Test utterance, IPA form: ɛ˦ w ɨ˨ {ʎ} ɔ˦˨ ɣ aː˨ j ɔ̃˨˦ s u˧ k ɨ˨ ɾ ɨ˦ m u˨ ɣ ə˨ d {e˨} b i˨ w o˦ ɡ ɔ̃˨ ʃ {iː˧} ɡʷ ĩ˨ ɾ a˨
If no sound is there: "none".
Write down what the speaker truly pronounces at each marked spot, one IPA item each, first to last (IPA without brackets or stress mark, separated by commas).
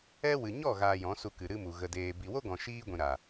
ɲ, eː˨, iː˧